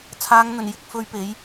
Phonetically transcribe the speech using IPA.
t͡sʰaː˨˧ŋ n̪ɵ˨˩njɪ˨k̚fɵ˨˧ɥ pe˨˥j

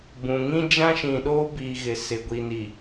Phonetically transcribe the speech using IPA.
bũ˨ ŋĩ˦d͡ʒã˦ ʃĩ˨ɗoː˦biː˨ ɣɪ˨sɪ˨ ɡʷi˨ni˨

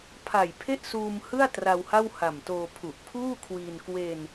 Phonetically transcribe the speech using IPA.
pʰa˨˩j pʰe˥˩ʔsuː˧mhɯ˥˩a̯ tra˧wha˥˩wha˨˩mtoː˧ pʰu˨˩ʔpʰuː˥˩kʰwiː˧n kwe˧n

